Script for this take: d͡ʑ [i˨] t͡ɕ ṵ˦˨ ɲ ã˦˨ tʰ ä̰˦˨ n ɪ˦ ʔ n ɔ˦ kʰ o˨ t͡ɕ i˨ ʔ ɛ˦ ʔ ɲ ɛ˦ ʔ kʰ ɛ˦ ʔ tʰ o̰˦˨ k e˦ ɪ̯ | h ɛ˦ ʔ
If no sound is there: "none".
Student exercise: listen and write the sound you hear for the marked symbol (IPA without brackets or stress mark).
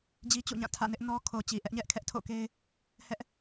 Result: i˦